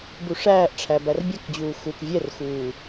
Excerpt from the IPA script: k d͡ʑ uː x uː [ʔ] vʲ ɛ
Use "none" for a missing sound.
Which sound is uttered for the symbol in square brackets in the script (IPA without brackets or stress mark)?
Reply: k